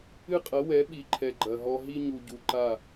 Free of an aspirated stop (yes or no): no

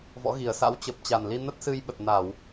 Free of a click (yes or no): yes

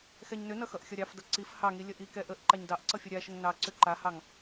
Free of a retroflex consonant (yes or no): yes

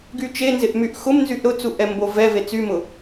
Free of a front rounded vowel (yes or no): no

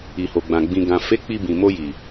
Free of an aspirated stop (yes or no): yes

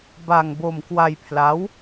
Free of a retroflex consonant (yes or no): yes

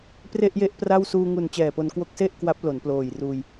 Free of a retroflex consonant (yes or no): yes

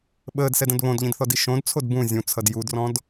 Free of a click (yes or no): yes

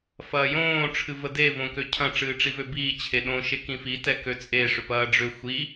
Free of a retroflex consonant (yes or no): no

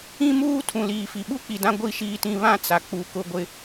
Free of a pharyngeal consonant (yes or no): yes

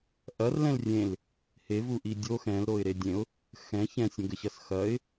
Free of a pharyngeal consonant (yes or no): yes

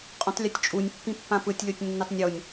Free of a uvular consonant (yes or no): no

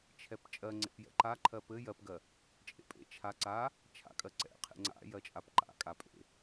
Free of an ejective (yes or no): no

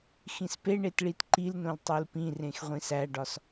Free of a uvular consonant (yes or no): no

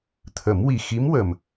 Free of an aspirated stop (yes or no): no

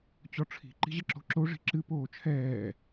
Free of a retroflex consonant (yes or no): no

